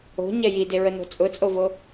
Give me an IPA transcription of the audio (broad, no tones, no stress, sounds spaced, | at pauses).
o̤ ɲ ɛ j i d e ɹ ə n o̤ t͡sʼ ʊ t͡sʼ o v o